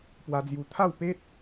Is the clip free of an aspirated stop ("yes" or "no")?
no